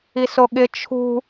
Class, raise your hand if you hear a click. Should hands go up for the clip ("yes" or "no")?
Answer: no